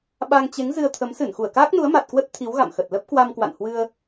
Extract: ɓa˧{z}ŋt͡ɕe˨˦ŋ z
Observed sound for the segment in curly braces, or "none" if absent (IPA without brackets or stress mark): none